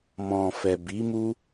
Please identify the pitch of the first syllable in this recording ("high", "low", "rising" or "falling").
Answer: low